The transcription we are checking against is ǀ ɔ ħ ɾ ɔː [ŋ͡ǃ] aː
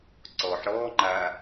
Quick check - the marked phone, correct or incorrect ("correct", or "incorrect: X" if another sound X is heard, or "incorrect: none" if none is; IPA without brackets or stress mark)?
correct